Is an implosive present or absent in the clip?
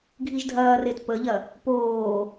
absent